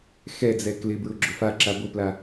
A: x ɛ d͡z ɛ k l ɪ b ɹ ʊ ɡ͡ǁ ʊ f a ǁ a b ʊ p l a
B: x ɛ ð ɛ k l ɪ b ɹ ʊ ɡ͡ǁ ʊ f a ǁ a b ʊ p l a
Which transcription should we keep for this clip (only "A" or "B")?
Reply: A